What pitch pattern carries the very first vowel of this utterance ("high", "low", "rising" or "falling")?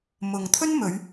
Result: low